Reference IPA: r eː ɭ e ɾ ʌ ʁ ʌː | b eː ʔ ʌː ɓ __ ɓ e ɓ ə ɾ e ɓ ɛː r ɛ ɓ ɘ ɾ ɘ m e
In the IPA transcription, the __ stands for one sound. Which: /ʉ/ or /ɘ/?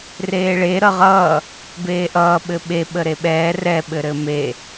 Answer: ɘ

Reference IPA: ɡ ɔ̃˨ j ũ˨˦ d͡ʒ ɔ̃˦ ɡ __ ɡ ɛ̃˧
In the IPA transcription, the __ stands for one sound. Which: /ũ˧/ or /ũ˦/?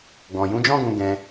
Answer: ũ˧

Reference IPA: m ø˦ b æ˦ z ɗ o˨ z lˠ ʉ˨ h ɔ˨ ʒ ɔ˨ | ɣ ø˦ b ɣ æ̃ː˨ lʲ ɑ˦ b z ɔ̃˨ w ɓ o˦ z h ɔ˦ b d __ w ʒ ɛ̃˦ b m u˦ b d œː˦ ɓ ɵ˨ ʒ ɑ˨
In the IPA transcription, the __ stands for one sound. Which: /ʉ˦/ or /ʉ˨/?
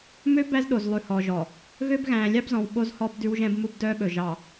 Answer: ʉ˦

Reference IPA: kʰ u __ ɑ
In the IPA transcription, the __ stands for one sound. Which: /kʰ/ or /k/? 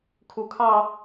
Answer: kʰ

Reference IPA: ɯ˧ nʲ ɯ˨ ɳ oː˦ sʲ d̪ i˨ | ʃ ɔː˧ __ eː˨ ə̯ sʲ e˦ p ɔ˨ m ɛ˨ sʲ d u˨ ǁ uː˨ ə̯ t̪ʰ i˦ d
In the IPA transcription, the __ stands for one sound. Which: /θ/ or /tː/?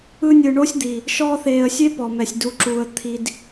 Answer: θ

